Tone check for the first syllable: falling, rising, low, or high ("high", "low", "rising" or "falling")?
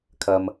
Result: low